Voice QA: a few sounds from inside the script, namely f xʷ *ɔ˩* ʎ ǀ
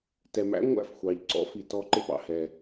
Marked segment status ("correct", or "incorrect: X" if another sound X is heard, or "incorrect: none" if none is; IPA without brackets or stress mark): incorrect: ɑ˩